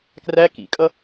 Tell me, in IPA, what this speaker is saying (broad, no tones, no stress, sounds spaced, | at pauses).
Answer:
k r æ k ḭ kʼ ʌ